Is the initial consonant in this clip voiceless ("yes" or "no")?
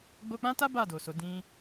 no